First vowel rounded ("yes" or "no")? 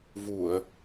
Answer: yes